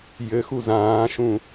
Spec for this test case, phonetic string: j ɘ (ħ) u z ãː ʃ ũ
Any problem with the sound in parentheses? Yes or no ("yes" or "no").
yes